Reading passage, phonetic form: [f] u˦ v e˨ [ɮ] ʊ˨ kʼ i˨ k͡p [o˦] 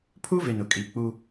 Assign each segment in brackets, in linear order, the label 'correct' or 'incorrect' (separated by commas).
incorrect, incorrect, incorrect